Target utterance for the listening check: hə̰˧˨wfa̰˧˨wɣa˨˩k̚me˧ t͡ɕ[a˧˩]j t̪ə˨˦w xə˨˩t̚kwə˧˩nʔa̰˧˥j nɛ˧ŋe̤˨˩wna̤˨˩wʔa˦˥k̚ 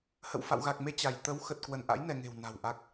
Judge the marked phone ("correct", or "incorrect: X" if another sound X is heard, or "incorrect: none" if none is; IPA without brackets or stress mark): correct